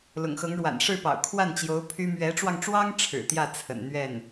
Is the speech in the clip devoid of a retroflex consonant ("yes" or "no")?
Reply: no